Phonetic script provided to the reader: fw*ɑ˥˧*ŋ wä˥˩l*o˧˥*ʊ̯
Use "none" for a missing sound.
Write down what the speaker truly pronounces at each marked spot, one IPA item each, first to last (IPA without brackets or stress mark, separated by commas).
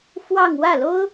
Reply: ɑ˥˧, o˥